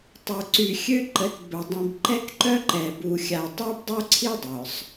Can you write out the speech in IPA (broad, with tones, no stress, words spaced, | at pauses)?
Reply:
tˤø˨ǀy˨xʲø˦ǃə˨˦t bœ˨ dˤĩ˨bǃɛ˦kǃœ˦ ǃɛ˨bu˨ xʲa˨tˤø˦bdˤo˦ǀʰi˦ dˤœ˨sˤ